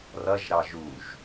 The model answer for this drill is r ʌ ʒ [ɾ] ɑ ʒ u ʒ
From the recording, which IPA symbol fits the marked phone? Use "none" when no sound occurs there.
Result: ɾ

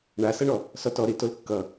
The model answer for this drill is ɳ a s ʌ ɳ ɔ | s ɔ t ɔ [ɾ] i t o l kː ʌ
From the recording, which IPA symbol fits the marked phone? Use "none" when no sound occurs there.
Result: ɾ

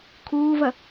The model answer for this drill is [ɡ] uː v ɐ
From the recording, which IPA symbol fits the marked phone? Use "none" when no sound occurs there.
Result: kʰ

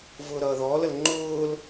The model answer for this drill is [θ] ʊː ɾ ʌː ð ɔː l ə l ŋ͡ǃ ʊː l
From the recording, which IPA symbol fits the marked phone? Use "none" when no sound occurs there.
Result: v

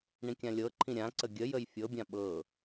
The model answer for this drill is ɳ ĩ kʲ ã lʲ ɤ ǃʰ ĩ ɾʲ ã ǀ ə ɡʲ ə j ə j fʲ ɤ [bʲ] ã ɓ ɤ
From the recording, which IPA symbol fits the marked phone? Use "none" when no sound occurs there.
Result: bʲ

